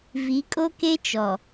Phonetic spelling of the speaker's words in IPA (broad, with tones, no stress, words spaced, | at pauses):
vi˨˦kʼo˦ke˦ t͡ʃɔ˨